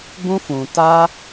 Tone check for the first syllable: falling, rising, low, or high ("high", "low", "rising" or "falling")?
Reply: high